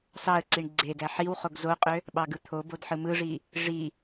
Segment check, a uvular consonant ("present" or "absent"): present